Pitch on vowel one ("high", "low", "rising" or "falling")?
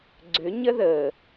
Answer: rising